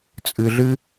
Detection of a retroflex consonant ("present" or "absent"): absent